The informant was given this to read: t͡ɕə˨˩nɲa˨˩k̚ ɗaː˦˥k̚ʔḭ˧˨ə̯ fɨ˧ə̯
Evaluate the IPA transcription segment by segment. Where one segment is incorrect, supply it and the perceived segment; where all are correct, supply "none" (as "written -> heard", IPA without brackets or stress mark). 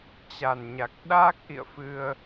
ə˨˩ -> a˨˩